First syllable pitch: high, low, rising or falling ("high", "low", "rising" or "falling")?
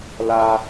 high